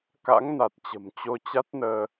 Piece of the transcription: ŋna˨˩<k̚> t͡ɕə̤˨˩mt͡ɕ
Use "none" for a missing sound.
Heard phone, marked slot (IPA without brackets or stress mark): t̚